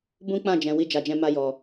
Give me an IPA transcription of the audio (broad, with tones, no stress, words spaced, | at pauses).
bũ˦k͡pã˦˨d͡ʒɛ̃˨ wi˧d͡ʒa˨d͡ʒɛ̃˧ ma˧jɔ˨